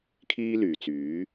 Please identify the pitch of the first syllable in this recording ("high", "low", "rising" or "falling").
high